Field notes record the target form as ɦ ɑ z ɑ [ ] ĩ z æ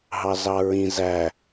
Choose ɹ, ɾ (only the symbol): ɹ